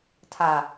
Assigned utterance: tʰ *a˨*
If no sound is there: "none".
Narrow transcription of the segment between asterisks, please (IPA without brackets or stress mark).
a˨